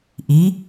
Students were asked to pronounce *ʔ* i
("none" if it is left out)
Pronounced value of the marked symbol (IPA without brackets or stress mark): ʔ